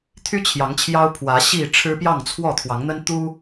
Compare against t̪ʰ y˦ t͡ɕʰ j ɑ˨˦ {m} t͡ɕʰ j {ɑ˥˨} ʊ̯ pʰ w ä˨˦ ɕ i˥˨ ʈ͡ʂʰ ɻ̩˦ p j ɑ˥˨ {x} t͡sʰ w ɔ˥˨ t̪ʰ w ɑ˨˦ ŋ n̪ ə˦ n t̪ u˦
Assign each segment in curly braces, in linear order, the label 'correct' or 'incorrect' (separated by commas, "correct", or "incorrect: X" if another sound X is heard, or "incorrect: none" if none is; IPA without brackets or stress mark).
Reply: incorrect: ŋ, incorrect: ɑ˦, incorrect: ŋ